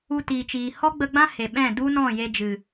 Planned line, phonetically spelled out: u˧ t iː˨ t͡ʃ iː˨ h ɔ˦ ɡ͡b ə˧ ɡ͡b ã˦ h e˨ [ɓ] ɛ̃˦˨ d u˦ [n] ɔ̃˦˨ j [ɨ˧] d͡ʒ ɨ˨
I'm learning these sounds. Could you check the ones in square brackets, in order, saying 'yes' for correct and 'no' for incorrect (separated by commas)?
yes, yes, no